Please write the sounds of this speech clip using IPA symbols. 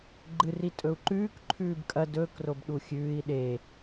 ɡ͡ǃ ɨ r i tʼ ɵ u̯ ǃ ʉː k ǃʰ ʉː b kʼ ɐ d ɵː k r o b ɗ u xʲ ʉː i̯ ɗ e

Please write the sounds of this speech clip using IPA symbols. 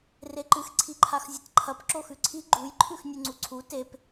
r e ǃ ɨ x ǀʰ i ǃʰ a x zʲ ɐ t ǃʰ ɐ p ǁ o x ʉ ǀʰ i ɡ͡ǃ u j ǃʰ ʉ x nʲ ʉ ŋ͡ǀ u ǀʰ u t e p

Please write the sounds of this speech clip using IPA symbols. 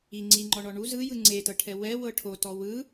i ŋ͡ǀ i ŋ͡ǃ ɔ ɳ ɔ ɳ u z ɯ j ɯ ŋ͡ǀ e t ɤ ʈʰ ɛ w ɛ w ɤ ʈʰ o t ɔ w ɯ

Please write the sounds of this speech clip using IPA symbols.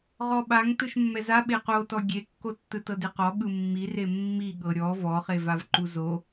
ʁ ɔ ɓ a ŋ t ɯ ʃ mː ɛ z a ɓ e q o t ɔ ɡʲ e kː o tː ɯ t ɤ d e q ɔ ɠ ɯ mː i r e mː i ɠ ɤ ɾʲ ɔ v ɔ χ e v a v ǃ u z o

